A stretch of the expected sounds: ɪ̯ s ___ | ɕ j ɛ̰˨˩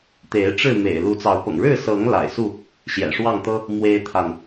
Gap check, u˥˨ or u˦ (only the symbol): u˥˨